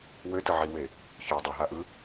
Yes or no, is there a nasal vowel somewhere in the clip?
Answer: no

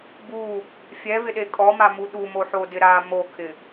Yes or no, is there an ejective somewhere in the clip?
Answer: yes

